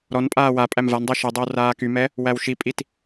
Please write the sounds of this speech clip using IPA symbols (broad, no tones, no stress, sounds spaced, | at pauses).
ɾ ɔ n pʼ aː w a pʼ æ m v a n dˤ ɛ ʃ ɛ dˤ i w r aː k y m ɛ | w æ w ʃ i pʼ i t